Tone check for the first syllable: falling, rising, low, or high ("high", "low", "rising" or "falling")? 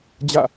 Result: falling